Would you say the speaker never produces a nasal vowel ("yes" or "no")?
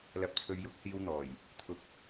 yes